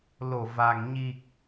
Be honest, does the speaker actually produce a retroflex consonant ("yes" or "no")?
no